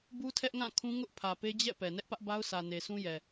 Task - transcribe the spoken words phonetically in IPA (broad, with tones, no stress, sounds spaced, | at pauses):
b u˦ tʰ ɛ˦ ʔ ŋ ã˦˨ kʰ ũ˦ ŋ ʊ˦ ʔ pʰ ä˨ p e˦ d͡ʑ ɛ̰˦˨ p ɛ˨ n ɛ˦ ʔ p ä˦ ʔ b a˦ ʊ̯ sʰ ä˨ n e˨ s ũ˦ j ɛ˨